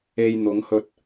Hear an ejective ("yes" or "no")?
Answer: no